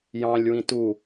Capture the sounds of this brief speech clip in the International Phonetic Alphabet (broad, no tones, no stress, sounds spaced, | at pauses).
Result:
j ɑ̃ lʲ w ĩ t u